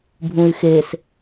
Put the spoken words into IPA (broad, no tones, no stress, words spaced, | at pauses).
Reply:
bʱũy̯xes